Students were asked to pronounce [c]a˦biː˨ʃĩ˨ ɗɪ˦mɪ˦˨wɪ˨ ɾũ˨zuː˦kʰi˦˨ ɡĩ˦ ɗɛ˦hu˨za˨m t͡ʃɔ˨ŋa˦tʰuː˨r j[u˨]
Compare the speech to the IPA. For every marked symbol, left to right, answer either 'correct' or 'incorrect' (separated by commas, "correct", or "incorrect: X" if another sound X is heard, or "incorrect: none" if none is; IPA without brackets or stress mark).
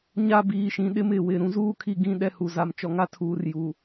incorrect: ɲ, correct